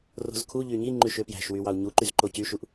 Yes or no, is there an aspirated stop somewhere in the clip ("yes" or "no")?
yes